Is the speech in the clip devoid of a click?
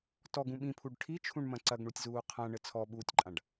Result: no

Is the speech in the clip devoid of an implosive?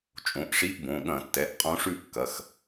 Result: no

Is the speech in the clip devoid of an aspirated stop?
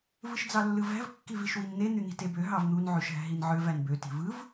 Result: yes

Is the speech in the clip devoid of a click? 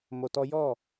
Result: yes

